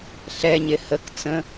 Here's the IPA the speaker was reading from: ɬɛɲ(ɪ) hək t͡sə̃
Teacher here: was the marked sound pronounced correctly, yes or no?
yes